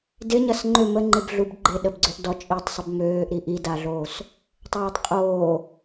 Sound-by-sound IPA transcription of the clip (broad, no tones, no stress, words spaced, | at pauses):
dɪɲɐs ŋ͡ǃʏ məŋ͡ǃɪb ɮubɡ͡ǃɪ ɗəbɡ͡ǀøʔdɔ t͡ʃʼitˤsˤəb møːʔɾi ʔidaɮoːs | tˤoːtˤqʼoː